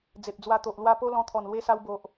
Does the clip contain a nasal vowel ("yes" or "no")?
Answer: yes